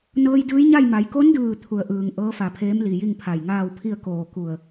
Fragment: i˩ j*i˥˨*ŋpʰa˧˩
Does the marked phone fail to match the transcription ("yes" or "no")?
no